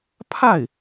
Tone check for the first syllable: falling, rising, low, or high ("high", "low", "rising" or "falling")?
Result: falling